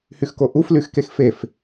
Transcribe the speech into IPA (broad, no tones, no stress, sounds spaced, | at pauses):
h y x k o ʔ u f l y x k e x f e f